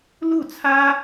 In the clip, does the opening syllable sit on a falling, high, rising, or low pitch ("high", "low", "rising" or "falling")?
falling